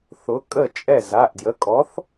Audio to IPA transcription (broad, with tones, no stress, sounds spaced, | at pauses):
θ ʊ˨˥ kʼ ə˥˨ t͡ʃʼ ɛ˥˨ z a˩˧˩ ʔ d j ə˩˧˩ kʼ ɔ˨˥ θ